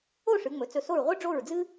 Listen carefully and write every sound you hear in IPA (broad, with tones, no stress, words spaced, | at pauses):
o˥˨ʂɨ˩˧ŋ͡mɵ˩˥ t͡sɵ˧˩so˥˨ɹ ʁʷɨ˥ɖ͡ʐo˥˨ɹd͡zɨ˥